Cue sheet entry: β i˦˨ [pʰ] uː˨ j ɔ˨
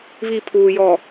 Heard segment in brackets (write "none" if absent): pʰ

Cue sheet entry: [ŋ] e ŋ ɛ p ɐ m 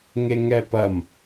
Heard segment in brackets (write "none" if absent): ŋ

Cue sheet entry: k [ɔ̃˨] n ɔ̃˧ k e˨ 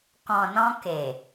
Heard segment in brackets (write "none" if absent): ɔ̃˨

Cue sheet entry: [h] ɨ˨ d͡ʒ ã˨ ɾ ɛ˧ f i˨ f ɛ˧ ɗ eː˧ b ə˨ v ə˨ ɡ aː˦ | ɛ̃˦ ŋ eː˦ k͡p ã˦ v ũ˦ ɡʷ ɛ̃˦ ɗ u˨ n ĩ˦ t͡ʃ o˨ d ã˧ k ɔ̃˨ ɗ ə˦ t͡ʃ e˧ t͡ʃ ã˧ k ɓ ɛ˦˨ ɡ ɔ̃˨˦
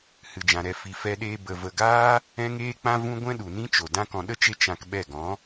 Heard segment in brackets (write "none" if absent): h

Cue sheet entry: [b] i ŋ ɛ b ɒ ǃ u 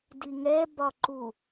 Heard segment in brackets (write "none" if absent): d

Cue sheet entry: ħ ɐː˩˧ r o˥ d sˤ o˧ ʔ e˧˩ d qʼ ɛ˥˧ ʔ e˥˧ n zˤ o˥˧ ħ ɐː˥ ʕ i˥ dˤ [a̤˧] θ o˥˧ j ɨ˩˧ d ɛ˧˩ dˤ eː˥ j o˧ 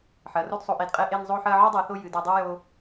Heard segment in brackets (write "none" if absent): a˧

